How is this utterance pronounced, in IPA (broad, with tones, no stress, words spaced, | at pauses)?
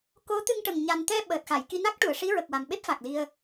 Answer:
ko˧˥ t̪ɨ˧ŋʈə˨˩ŋ ɲa˨˩nt̪ɛ˧ ɓəː˨˩t̚xa˨˩˨j ki˧na˦˥k̚ʈu˨˩˨ə̯ʂi˧˥ ɹə˨˩k̚wa˨˩mɓe˦˥p̚ fa˨˩k̚li˧ə̯